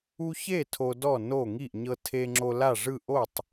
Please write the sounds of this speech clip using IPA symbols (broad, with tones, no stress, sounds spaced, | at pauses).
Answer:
u˦ ç e˥˨ tʰ o˦ d ɔ˥˨ n o˥˨ ŋ i˥˨ ʔ ɲ ɤ˦ tʰ e˦ ŋ͡ǁ o˦ l a˥˨ ʐ ɯ˥˨ ʔ o˥˨ tˤ